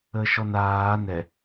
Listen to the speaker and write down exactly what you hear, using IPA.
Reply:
əː ʃ ɔ n aː n ɛ

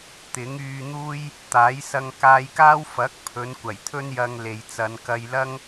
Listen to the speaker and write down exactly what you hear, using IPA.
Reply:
t̪ ɪ˨˥ ŋ yː˧ n̪ uː˥ j | t̪ aː˨˥ j s ɐ˧ ŋ k aː˧ j k aː˥ w f ɐ˨˥ k̚ pʰ ɵ˨˧ n kʷ ɐ˨˩ j t̪ʰ ɵ˥ n j ɐ˧ ŋ l e˨ j t͡s ɐ˨˧ n k ɐ˧ j l ɐ˥ ŋ

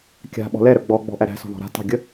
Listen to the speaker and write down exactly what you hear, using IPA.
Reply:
kʲ a̤ ɓ ɔ̤ l ɛ ɾ œ ɡ͡b ɔ ɡ͡b ɔ̤ ʔ æ ɾ æ̤ s ɔ̤ ð ɔ̤ ɾ a̤ t ɑ̤ ɡʲ ə

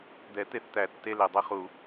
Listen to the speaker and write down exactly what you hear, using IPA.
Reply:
d̪ ɛ˨˩˦ t̪ e˧ θ t̪ æ˨˩˦ tː e˧ l e˩ dˤ e˧ χ u˨˩˦

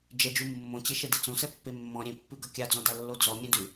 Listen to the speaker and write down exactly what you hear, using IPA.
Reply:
d͡ʒ ɛ d͡ʒ u mː õ t͡ɕ e ʃ ɛ d e t͡s õ s ɛ pː e mː ɔ̃ ɾʲ ẽ pː ʉ ɡ ʌ kʲ a d͡z ɔ̃ d a lː o d͡z ɔ mʲ ẽ d ʉ

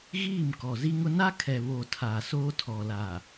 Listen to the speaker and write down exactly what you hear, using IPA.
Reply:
ɣ iː˦˨ m k ɔ˨ z i˦ ŋ ʊ˦ n a˦ kʰ ɛ˨ β o˨ tʰ aː˨ s oː˦ tʰ ɔ˨ l aː˨

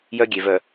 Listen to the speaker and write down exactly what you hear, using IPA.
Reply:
j œ˦ ɡʲ e˨ v œ˨

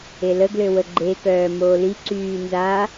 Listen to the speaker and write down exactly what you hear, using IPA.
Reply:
e l ə ɡ l ø w ə ɡ͡ǃ e k œː m oː l i ǀ yː n z a

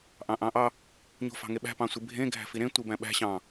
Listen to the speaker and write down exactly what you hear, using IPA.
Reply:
ʔ ɑ̃ ʔ ɑ̃ ʔ ɑ | ɲ o̤ f ɑ̤ ŋ e ɓ æ̤ p ɑ̃ sʷ i bʱ ẽ ɡʱ æ̤ f i ɾ ẽ tʷ i b æ̃ ɓ æ̤ ɕ ɑ̃

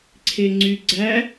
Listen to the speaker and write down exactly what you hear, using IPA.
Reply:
ǀʰ e ŋ͡ǀ y ɡ͡ǀ æ

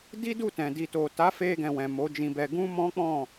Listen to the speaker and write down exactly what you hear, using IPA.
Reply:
d i˦ d u˦˨ t ɛ̃˨ d i˨ t o˨ t a˨˦ f e˧ ɡ ɛ̃˨ w ɛ̃˨ m o˨˦ d͡ʒ ĩ˧ b ɛ˧ ɡ ũ˦ m ɔ̃˦ k͡p ɔ̃˦˨

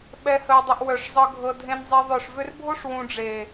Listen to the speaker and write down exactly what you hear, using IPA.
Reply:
ɓ ɛ˧ h ə˧ w dˤ ʏ˧ ʔ w œ˨ ʂ zˤ ɤ˧ ɡʱ ɤ˧ dʱ ẽ˧ n zˤ e˧ ðˤ œ˨ ʂ v ʏ˧ r bʱ o˦ ʂ w ũ˧ ɖ͡ʐ e˨

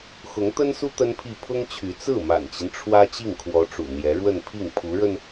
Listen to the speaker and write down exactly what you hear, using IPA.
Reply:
x ʊ˧˥ ŋ t̪ ə˥ n s u˥ t̪ ə˥ n pʰ i˥˩ pʰ ʊ˥ ŋ t͡ɕʰ y˧˥ t͡s ɹ̩˥˩ m a̰˨˩ n t͡ɕ i˦ n ʈ͡ʂʰ w ä˥ t͡ɕ i˥˩ ŋ kʰ w ɔ˧˥ ʈ͡ʂ ṵ˨˩ n̪ j ɛ˧˥ ɻ w ə˥˧ n pʰ i˥˩ ŋ pʰ u˧˥ ɻ ə˧ n

